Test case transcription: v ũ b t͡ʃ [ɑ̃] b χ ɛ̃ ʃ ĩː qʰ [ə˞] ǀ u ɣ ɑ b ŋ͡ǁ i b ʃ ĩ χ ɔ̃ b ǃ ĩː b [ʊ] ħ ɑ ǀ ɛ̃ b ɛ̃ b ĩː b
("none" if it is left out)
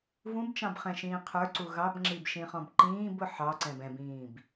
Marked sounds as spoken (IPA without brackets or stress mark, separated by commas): ɑ̃, ə˞, ʊ